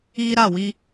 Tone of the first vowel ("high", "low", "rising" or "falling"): high